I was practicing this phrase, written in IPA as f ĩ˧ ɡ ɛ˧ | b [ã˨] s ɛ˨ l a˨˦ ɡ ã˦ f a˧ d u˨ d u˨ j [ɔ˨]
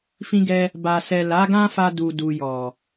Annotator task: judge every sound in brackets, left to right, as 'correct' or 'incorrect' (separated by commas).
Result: incorrect, correct